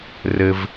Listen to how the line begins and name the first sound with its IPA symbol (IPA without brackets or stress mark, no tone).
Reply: r